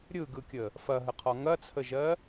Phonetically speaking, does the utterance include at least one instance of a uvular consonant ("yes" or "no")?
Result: yes